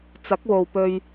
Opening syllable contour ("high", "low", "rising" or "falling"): rising